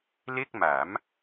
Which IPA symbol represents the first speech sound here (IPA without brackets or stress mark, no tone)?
l